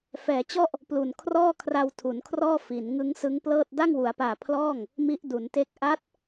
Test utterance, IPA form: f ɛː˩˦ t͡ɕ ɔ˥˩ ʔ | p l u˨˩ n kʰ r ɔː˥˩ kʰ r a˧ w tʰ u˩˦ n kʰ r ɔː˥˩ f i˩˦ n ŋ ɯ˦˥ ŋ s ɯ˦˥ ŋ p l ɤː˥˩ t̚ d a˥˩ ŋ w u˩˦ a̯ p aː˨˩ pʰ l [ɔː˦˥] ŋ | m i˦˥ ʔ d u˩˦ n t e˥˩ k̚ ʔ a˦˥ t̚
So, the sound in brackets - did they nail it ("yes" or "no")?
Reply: no